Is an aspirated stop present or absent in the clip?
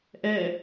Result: absent